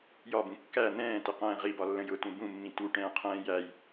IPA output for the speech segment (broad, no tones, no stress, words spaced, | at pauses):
jɒbũ kːæ n̪ɛ̃ːtɪqɛ̃ː ʁibɒlːə̃j ʊtũ bũmːĩ tuʈɛ̃ːqʰɛ̃ː jæj